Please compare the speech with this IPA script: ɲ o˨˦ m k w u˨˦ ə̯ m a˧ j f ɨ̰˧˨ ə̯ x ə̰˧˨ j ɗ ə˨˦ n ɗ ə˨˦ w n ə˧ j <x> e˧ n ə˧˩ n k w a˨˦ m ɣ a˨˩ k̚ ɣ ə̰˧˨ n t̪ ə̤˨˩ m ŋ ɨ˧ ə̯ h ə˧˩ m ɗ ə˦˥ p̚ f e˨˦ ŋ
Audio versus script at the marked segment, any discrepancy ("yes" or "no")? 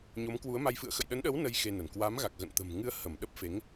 no